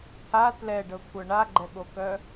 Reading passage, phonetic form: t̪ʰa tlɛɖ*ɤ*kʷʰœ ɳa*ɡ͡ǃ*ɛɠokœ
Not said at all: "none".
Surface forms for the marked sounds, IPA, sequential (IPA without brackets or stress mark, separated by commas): ɤ, ɡ͡ǃ